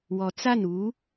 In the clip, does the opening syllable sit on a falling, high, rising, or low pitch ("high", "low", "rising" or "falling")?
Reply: rising